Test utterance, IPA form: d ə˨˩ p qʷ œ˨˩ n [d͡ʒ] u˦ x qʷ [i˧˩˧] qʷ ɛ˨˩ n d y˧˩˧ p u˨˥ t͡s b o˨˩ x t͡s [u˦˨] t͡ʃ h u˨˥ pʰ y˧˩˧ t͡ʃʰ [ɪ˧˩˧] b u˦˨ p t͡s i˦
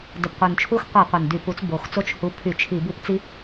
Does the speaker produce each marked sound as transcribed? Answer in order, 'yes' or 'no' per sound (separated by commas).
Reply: no, no, no, no